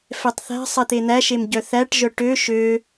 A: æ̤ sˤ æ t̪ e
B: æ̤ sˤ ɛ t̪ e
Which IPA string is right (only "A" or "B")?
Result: B